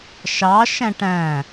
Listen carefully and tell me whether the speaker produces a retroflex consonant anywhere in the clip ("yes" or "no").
yes